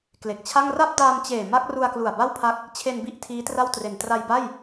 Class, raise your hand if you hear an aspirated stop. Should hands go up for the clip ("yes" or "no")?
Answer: yes